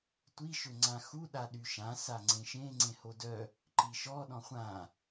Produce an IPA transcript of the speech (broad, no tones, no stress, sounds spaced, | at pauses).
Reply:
tʷ i ʃ ø ŋ͡ǀ ã x u ɗ a ɗ y ʃ ã s a ŋ͡ǀ ẽ ʃ ẽ ŋ͡ǀ ẽ h o d œ | ǃ i ʃ ɔ ɗ ɔ̃ χʷ ã